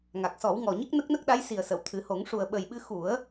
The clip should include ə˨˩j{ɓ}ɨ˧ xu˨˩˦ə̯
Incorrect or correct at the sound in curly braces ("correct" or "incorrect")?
correct